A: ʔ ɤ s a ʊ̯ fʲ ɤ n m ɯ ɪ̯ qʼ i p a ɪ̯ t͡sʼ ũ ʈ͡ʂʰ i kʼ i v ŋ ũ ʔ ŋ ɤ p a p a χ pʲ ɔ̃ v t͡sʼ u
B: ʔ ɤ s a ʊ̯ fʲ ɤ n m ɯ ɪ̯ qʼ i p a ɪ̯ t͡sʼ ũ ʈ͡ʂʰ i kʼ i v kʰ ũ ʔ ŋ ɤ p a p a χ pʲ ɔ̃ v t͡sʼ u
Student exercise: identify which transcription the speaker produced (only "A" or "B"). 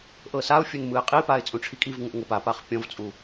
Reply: A